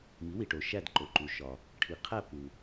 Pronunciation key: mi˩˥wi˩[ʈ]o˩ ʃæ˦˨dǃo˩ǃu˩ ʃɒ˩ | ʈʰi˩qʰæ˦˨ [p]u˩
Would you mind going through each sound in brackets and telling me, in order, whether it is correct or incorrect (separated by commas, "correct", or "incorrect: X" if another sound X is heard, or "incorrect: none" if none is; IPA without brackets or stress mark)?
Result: correct, correct